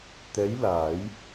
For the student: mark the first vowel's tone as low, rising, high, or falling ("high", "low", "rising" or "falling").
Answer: rising